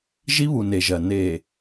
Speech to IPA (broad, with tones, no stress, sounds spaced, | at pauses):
ʒ i˦ β u˨ n e˨ ʒ ɜ˨ n e˨